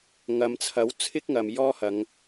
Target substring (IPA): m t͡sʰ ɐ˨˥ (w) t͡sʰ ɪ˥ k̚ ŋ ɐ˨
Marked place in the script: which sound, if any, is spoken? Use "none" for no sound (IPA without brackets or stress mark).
w